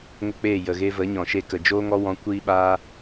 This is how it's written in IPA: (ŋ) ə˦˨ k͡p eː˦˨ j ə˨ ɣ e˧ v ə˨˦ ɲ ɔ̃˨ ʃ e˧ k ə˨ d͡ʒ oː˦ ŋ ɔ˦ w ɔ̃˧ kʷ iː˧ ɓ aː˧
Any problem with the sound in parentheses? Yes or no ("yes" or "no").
no